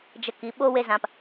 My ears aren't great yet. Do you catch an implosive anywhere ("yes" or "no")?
yes